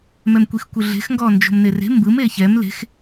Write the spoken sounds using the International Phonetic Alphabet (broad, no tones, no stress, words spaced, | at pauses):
mɛmkʷixkʷɯɮe̤x ŋɡɔnd͡ʒo̤mnere̤ mbɯm eçɛm le̤x